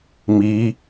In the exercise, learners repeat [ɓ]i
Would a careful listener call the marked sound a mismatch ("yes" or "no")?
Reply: yes